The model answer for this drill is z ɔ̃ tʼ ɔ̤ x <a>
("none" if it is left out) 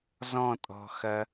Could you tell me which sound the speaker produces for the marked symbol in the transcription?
ɐ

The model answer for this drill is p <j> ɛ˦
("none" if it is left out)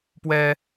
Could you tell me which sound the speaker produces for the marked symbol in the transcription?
w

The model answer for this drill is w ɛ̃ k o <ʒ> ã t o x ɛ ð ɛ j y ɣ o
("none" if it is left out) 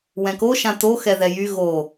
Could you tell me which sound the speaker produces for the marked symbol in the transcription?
ʃ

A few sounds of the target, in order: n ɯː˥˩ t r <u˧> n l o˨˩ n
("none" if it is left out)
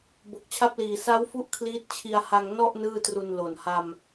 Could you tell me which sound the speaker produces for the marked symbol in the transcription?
u˧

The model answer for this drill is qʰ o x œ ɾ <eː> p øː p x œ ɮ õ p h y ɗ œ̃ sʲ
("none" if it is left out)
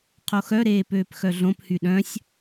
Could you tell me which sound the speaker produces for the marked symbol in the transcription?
eː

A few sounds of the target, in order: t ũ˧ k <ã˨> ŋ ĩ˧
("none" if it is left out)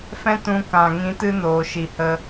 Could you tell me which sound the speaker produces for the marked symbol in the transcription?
ã˨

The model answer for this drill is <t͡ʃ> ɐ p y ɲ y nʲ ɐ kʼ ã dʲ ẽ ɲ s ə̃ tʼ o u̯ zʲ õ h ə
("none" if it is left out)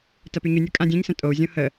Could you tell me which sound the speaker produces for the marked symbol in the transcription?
t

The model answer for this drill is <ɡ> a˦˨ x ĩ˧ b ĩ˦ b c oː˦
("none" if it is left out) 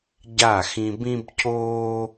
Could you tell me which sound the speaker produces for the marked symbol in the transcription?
ɟ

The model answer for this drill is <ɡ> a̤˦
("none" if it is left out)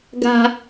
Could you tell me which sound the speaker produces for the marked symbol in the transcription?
ɡ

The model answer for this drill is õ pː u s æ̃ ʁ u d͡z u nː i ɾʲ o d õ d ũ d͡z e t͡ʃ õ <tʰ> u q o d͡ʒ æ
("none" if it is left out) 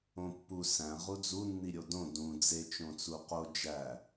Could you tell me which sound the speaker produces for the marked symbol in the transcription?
t͡s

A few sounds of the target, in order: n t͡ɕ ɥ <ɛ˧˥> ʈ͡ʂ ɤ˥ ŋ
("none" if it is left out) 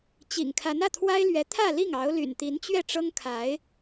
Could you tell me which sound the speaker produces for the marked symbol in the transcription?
ɛ˥˩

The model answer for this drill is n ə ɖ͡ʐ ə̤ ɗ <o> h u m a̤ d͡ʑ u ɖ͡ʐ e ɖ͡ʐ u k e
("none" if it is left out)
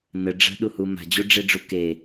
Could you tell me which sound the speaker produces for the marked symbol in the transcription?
u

